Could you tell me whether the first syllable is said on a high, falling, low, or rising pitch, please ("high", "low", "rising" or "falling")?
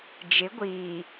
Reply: rising